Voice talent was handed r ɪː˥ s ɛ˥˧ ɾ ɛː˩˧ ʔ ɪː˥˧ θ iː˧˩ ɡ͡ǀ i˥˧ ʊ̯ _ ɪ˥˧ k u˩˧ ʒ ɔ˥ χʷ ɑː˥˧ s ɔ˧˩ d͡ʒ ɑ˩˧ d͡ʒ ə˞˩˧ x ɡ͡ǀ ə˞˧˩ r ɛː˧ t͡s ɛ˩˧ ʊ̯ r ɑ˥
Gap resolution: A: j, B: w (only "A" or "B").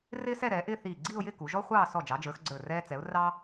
A